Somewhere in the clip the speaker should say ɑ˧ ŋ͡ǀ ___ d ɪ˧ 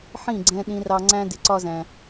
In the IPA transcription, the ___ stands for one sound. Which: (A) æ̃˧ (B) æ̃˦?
B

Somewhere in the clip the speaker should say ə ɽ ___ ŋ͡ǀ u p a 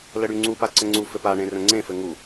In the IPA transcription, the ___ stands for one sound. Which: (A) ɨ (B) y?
B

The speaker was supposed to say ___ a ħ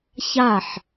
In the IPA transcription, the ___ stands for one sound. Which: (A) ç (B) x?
A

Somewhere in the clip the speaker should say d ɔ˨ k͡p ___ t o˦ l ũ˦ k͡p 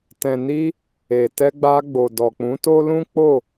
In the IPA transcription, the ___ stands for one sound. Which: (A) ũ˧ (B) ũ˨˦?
B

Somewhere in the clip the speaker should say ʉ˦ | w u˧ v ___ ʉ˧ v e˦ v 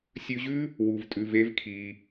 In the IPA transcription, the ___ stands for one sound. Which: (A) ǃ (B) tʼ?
B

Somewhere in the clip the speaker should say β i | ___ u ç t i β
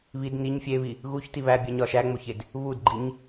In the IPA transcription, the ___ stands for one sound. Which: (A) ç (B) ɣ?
B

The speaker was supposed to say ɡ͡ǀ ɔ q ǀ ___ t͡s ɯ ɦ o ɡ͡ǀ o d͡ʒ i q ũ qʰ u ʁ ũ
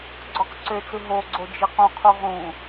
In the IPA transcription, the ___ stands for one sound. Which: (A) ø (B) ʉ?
A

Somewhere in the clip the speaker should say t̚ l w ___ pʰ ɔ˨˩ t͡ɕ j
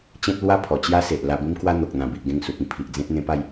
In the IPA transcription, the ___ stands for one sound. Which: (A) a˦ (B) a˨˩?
A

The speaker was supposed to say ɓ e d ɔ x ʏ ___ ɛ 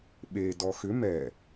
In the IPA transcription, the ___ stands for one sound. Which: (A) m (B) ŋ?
A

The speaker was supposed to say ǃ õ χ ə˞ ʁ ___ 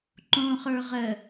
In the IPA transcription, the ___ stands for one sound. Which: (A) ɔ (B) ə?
B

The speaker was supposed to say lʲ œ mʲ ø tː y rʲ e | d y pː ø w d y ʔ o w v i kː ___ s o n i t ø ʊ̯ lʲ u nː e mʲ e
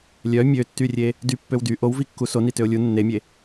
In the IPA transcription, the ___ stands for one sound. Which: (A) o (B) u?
B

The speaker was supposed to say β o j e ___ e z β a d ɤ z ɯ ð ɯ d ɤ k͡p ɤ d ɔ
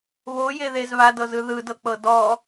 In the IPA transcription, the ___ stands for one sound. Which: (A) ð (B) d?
A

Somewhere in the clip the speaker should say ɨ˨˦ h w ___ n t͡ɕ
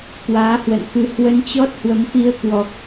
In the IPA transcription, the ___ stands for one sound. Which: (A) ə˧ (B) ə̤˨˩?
A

